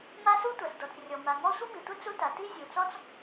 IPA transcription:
m a˥ s u˥ tʷ a˩ s d ɔ˩ t͡s rʲ ɔ˩ m a˩ ŋ ɔ˥ sʷ i˥ m i˩ tʷ ɘ˥ t͡s u˥ t a˩ t i˥ zʲ u˩ t͡s ɔ˥ t͡s

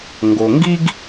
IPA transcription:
ŋ ɡ o˩ ŋ ɡ i˥ ɡ

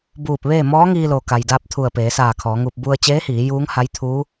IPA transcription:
b uː˧˩ p̚ ʋ eː˥˨ m ɔː˧˥ ŋ iː˧ l o˩ k a˩ j d aː˧ p̚ t̪ʰ u˧˩ ə̯ p eː˩˧ s aː˧˩ kʰ ɔː˩˧ ŋ u˧ p̚ b u˧ ə̯ t͡ɕ eː˧˥ h iː˩˧ j uː˧˥ ŋ h a˧˥ j t̪ʰ uː˧˥

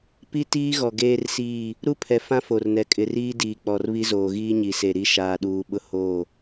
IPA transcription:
p i˦ t iː˦ ɣ ɔ˨ ɡ eː˦ r s iː˦˨ | ɾ u˦ pʰ ɛ˨ f ã˦ f o˨ r n ɛ˨ kʼ ɪ˨ r iː˦ d iː˨ k͡p ɔ˨ r β i˦ z oː˨ ɣ iː˦ ɲ i˨ s e˨ ɾ i˦ ʃ aː˨ ɗ uː˨ ɓ ʊ˦ h oː˦˨

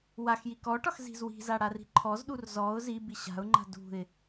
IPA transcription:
w a x j i k ɔ ʈ ɒ x z i̤ z w i̤ z a ɽ a r i̤ ǃʰ ɔ z ɗ u r z ɔ ʊ̯ z i b i ɕ a̤ ʊ̯ ŋ͡ǃ a̤ d ṳ ɪ̯

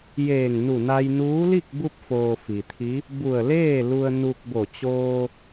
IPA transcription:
j eː˧˩ ŋ n u˧˩ n a˧ j n uː˧˥ l i˥˨ k̚ b u˧ p̚ f oː˩ f i˩ t̪ʰ i˧˥ | b u˧˩ ə̯ l eː˥˨ l u˧ ə̯ n u˧ k̚ b o˧˩ t͡ɕ oː˧

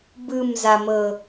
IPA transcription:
b ɯ m z a m ɤ

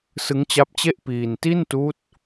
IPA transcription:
s ɯ˦˥ ŋ t͡ɕ a˦˥ p̚ t͡ɕ e˥˩ ʔ p iː˧ n t i˥˩ n t uː˦˥ t̚

